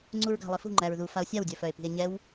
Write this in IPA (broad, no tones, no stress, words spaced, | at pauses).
ŋ͡ǀuɹɡa̤lˠifṳ ŋ͡ǃæɹðu fao̯sʲawdʲœfœe̯ pi̤e̯ɲɛw